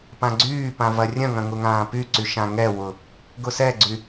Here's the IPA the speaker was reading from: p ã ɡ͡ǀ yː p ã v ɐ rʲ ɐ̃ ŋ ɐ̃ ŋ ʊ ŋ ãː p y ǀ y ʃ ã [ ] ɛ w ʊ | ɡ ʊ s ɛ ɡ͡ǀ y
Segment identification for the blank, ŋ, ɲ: ŋ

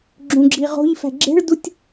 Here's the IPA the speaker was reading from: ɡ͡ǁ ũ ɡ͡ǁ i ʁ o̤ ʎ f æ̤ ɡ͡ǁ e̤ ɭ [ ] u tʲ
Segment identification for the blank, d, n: d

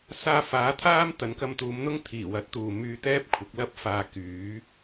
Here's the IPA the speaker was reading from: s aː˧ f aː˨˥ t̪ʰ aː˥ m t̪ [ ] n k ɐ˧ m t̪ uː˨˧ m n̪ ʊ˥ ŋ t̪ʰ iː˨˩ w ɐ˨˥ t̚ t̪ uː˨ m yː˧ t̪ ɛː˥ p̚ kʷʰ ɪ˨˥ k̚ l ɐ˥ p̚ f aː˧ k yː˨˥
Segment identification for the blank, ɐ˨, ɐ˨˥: ɐ˨˥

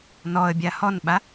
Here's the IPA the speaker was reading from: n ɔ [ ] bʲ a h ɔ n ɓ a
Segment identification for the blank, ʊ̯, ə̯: ə̯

